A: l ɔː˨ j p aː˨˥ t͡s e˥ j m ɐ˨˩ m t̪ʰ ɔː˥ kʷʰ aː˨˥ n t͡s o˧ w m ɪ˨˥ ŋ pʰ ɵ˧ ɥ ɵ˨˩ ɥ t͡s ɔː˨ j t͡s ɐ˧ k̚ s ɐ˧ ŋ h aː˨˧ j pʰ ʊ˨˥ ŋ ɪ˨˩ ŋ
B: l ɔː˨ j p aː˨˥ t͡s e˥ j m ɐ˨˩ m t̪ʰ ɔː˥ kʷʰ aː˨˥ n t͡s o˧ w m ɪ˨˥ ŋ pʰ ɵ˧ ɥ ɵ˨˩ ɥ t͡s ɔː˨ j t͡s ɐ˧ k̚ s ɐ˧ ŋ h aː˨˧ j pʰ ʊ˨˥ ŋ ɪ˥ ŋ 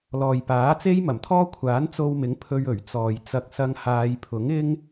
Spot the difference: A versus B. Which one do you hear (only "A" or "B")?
B